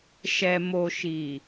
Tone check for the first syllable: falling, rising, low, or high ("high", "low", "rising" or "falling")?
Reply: low